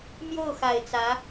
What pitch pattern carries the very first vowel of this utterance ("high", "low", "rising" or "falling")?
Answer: falling